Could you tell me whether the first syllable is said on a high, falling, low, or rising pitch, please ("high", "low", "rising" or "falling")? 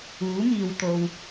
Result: rising